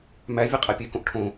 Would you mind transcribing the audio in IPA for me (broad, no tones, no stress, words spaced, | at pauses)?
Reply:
mævʲe qʼæpʲekõʔ ʈʰõ